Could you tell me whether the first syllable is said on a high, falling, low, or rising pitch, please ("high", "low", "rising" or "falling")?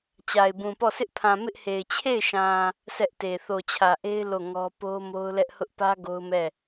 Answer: low